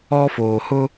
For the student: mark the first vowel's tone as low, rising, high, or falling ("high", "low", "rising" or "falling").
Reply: high